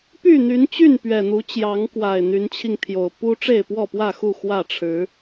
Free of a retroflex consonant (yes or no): no